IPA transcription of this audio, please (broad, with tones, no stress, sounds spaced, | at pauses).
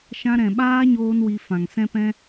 ʃ ã˧ ɾ ɛ̃˨ ɓ aː˦ ɲ oː˧ n w i˧ f ã˨ ŋ s ɛ̃˦ p ɛ̃˦